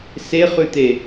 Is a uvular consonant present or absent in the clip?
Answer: present